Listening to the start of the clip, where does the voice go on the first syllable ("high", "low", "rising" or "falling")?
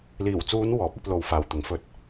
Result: low